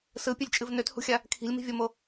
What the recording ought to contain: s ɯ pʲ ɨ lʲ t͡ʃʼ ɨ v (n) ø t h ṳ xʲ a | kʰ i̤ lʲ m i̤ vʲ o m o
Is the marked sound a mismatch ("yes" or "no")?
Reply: no